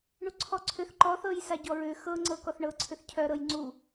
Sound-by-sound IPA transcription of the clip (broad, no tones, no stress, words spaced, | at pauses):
ɳuǀʰɔǀʰʏθ ǃɔθɤjsa ɟɔɹʏ xɤŋ͡ǀɤ kɔθɳɤǀʰʏθ cʰœɾɤj ŋ͡ǀu